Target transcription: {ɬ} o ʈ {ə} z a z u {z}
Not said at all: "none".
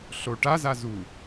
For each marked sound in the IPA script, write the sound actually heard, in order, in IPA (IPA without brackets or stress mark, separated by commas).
ɬ, a, none